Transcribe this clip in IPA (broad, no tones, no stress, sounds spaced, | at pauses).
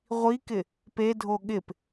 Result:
ʁʷ i k ɪ | p e dʱ o ɠ ɪ p